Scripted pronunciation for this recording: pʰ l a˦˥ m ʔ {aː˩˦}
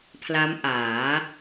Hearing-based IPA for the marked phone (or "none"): aː˩˦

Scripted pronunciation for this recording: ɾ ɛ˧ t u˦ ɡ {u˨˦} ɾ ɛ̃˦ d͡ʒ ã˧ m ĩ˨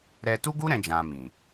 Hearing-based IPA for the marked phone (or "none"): u˦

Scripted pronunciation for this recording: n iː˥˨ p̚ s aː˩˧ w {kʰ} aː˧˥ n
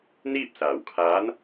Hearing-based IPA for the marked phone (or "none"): kʰ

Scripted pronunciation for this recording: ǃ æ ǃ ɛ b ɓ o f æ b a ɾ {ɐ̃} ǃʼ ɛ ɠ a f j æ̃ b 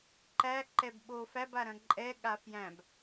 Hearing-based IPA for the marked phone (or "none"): ɐ̃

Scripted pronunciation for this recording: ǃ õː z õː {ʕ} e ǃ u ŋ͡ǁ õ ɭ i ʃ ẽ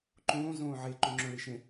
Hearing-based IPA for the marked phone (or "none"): ʕ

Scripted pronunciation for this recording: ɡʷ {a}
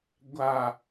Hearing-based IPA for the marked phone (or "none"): a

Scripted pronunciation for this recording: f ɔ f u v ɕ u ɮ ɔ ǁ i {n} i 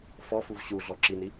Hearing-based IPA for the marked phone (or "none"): n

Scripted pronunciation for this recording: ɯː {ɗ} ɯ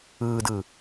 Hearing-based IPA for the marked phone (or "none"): d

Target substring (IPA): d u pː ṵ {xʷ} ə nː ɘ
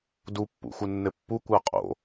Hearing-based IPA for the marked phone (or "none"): xʷ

